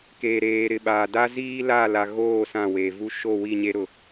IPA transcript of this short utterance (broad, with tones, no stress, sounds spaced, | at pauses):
k eː˨ ɾ eː˨ ɾ ɪ˨ ɓ aː˨ d a˦ z iː˦ l a˦˨ l a˨ ɣ oː˦˨ s ã˦˨ w eː˨ v u˦ ʃ o˦˨ w i˦˨ ɲ e˦ ɾ ʊ˦